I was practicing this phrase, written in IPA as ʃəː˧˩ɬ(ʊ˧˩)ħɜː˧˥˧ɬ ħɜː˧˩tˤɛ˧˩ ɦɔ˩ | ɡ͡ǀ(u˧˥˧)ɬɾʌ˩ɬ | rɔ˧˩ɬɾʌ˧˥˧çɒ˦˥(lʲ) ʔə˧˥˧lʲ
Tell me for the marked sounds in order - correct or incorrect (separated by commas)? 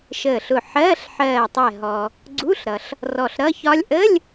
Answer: correct, correct, correct